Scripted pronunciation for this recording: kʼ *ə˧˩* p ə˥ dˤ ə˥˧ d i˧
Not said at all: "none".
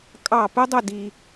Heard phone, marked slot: ɑ˧˩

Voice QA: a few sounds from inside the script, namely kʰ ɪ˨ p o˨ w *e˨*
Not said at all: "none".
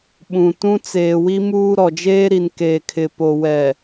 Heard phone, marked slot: ɛ˨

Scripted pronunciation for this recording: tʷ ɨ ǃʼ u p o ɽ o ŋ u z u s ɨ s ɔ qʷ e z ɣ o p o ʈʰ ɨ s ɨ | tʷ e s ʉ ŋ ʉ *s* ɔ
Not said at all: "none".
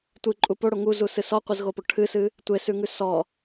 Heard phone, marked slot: s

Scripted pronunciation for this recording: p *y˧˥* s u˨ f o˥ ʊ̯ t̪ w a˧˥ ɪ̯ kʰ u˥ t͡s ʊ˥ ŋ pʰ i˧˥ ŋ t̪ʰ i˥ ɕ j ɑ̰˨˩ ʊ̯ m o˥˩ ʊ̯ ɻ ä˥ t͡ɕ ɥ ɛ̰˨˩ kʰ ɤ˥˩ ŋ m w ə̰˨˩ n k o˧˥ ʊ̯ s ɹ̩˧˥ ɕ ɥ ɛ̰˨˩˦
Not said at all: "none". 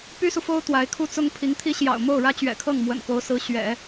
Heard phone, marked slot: y˥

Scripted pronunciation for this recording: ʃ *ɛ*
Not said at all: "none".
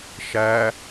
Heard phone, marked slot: æ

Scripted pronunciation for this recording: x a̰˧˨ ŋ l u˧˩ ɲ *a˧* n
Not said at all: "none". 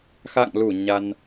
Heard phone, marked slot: a˧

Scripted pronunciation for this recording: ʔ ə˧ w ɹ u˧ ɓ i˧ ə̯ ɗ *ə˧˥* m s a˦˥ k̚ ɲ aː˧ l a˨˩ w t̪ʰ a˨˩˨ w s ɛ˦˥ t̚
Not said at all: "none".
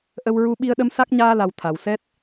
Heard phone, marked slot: ə˧˥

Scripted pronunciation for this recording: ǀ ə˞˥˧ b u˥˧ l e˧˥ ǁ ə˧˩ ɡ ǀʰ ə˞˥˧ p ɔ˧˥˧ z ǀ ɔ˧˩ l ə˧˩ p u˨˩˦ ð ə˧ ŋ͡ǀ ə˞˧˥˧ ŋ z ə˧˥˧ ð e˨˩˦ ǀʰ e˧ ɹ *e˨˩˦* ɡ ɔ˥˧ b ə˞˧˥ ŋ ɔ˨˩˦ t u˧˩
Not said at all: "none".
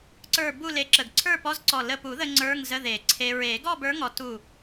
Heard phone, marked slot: e˨˩˦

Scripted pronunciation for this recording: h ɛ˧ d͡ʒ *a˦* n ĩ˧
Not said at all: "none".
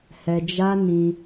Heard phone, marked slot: a˦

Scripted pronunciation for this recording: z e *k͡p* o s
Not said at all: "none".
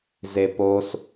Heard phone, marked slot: p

